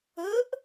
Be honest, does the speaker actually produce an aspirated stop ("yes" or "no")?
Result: no